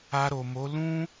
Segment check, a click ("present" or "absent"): absent